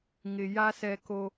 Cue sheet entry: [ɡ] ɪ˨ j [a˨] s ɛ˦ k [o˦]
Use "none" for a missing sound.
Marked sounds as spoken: ŋ, a˦, o˦

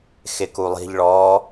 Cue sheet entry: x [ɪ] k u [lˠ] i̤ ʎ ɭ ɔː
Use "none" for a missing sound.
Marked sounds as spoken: ɪ, lˠ

